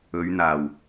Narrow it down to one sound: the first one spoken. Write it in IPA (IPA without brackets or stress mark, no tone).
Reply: ɵ